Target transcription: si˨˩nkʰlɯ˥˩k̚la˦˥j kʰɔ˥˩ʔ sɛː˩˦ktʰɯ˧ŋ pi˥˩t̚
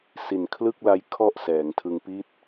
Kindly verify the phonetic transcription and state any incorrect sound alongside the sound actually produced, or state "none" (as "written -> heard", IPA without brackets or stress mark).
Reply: k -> ŋ